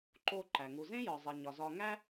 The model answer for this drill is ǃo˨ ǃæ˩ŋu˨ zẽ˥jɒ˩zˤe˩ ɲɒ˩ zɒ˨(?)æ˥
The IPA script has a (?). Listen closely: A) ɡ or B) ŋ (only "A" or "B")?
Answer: B